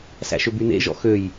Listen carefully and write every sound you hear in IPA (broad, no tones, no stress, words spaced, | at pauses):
sæ̰ʃøbynḛ ʒɔ̰xøj